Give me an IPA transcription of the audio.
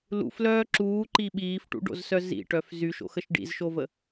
lṵflœː ǁuːǃi ɓiːfʈṵɖo̰zsœ zḭʈœf zyʃo̰xəʃ ɖḭzʃovə

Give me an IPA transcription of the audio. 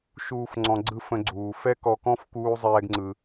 ʃuː˧f ŋ͡ǀɔ̃˧ɡ͡ǀɯ˦fə̃˧ɡ͡ǀuː˨ fɛ˦kɔ˧kɔ̃˦f kuː˦zˤɛː˦ɡŋ͡ǀɯ˧

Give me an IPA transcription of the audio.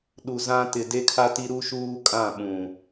ɗu˨ zã˦ tɪ˨ de˦kʰa˦ti˦ ɾu˦ʃuː˦kʼã˦˨ ɓũ˨

